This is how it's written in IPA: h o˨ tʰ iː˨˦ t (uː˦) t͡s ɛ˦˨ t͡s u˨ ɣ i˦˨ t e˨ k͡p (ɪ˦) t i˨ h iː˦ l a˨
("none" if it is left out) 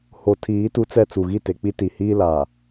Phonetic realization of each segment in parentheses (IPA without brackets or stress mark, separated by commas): u˦, i˦